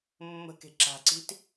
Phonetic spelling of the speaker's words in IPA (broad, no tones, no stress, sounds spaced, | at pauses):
mː ə̤ k e̤ ǁ a̤ ǀ i̤ t